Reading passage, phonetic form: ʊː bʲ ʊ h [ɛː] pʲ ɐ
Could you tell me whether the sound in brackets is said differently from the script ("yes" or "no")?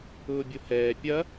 no